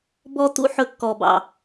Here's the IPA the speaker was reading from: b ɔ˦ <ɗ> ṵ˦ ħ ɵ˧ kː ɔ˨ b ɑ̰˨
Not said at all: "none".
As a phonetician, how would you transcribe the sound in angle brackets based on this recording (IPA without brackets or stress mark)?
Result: t